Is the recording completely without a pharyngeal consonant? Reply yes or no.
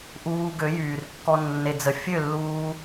yes